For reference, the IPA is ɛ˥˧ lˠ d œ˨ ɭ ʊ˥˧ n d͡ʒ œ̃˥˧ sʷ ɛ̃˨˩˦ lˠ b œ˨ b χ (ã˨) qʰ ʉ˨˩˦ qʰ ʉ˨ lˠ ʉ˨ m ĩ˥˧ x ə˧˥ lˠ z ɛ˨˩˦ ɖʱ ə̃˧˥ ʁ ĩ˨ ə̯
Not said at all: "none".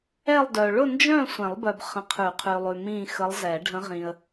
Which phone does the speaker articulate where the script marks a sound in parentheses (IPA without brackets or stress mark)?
ə̃˨